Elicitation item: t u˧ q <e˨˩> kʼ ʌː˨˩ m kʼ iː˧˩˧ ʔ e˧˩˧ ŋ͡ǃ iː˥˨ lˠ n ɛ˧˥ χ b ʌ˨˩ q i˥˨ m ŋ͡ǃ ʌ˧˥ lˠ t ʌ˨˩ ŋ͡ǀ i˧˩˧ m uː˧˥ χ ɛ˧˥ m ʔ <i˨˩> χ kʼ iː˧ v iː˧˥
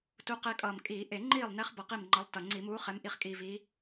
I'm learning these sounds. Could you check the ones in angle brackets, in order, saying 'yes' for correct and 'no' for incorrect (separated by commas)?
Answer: no, no